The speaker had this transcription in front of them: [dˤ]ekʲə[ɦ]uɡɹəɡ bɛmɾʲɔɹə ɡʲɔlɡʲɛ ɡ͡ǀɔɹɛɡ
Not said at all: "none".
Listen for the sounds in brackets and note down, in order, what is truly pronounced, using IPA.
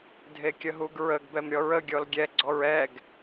dʱ, ɦ

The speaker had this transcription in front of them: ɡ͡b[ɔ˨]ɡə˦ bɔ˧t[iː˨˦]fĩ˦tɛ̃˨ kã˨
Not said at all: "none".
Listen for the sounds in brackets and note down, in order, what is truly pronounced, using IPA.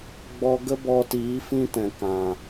ɔ˧, iː˨˦

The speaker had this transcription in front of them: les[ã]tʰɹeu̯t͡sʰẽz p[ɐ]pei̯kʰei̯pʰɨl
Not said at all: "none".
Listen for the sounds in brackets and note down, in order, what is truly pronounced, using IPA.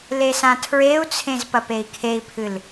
ã, ɐ

